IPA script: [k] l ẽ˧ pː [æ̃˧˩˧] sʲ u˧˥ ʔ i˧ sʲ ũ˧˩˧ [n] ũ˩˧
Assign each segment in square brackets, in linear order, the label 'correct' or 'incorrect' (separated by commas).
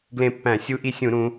incorrect, correct, incorrect